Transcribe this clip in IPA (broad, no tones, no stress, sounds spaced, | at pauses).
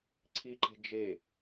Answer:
ǀʰ i ǃ e̤ d͡ʒ e